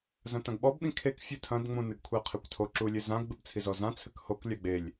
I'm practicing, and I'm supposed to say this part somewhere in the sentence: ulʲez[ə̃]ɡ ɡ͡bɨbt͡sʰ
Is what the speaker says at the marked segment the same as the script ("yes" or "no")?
no